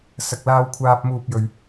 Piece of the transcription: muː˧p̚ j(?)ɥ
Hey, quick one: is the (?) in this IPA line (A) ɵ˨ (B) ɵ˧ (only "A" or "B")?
A